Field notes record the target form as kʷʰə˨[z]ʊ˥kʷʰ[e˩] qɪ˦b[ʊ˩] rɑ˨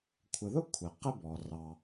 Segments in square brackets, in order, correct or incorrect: incorrect, incorrect, incorrect

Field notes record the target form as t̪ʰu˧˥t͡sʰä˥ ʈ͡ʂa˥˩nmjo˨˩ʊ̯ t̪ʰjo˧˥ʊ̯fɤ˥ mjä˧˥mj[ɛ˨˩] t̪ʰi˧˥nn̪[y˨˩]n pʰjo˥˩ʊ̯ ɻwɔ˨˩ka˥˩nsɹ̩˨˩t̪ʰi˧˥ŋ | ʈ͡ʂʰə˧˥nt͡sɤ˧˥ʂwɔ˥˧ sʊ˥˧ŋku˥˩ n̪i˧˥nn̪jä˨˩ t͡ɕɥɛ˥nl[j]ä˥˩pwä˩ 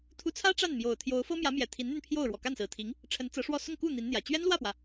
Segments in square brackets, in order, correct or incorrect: correct, incorrect, incorrect

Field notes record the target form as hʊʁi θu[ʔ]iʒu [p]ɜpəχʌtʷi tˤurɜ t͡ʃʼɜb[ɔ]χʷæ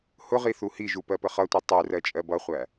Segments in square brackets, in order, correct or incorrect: incorrect, correct, incorrect

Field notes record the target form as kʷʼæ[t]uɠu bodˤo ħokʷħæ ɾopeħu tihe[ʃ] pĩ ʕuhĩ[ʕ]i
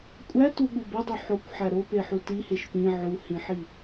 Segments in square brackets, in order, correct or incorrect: correct, correct, incorrect

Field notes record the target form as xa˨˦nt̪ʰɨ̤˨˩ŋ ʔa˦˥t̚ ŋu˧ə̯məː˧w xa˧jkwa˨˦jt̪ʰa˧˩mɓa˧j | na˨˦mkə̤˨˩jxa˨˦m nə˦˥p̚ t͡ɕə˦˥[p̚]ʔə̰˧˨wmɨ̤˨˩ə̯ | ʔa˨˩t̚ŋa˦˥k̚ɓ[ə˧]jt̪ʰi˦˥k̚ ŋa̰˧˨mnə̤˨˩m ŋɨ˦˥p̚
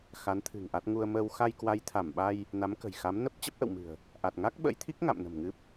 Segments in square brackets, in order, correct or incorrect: correct, incorrect

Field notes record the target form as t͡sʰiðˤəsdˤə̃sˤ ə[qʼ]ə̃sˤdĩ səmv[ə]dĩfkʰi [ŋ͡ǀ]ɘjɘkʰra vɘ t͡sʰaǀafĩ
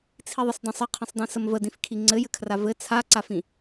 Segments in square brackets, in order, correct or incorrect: incorrect, correct, correct

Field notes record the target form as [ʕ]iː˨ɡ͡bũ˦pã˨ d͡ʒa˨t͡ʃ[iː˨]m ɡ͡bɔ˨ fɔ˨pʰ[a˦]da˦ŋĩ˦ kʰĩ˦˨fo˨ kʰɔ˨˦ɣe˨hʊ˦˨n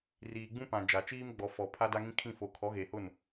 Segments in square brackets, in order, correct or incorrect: incorrect, incorrect, correct

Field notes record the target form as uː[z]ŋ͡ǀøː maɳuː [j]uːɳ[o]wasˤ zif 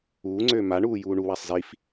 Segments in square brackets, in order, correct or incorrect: incorrect, correct, incorrect

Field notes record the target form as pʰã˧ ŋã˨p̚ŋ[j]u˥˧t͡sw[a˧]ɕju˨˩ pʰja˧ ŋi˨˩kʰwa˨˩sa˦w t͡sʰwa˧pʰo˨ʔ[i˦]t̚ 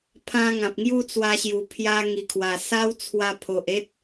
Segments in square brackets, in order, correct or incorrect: correct, correct, incorrect

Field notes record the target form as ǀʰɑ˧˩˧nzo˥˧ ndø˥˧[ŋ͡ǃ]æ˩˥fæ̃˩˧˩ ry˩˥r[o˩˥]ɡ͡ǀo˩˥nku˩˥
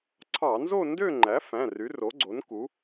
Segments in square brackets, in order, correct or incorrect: correct, correct

